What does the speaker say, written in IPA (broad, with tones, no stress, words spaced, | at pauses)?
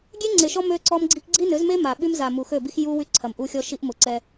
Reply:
ɡʲe˦ŋ͡ǀe˨ʃɔ˦ mø˦ǀɔ˦mɡ͡ǀi˦k ɡ͡ǀi˦nø˨˦zme˦ ma˨ ɓy˦mza˨ mu˨xø˦˨bi˦x ju˦ wy˦ǀʰɐ˨mʔu˦xʲɔ˦ ʃi˦ʔmʊ˨ ǀɛ˦